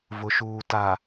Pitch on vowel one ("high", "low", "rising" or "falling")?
low